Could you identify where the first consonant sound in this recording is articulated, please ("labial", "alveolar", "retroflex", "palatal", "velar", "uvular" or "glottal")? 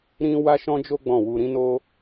alveolar